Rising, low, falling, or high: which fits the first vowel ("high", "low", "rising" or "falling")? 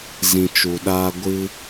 low